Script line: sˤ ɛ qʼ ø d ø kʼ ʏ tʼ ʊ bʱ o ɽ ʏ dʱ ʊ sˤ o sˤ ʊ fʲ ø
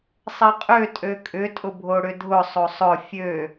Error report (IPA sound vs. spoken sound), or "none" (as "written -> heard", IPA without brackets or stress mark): d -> tʼ